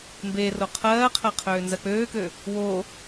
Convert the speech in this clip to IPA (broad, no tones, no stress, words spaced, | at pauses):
mbe roqʰɜːqʰɜ qʰøːnzɜk͡pøːkø | wo